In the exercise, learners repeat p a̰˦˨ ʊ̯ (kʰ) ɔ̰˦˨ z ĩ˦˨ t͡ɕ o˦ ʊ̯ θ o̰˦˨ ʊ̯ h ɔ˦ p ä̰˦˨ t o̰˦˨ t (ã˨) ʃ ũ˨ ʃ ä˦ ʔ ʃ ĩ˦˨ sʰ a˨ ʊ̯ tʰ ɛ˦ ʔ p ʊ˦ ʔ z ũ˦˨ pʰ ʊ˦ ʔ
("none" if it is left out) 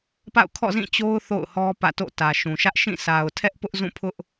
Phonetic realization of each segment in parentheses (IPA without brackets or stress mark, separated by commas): kʰ, ä˨